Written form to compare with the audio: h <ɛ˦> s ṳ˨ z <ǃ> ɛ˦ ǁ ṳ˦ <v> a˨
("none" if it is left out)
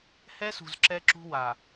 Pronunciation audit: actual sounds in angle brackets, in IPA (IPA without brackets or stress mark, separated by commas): ɛ˦, ǁ, w